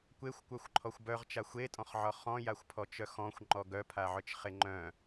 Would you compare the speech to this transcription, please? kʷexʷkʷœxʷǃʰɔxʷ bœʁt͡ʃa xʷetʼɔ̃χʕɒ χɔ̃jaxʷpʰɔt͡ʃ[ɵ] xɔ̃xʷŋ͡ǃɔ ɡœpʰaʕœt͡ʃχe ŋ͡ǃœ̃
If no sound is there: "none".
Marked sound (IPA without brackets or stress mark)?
œ